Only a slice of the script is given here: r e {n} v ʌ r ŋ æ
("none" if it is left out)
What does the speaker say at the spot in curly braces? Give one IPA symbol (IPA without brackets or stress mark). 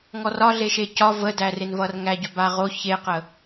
n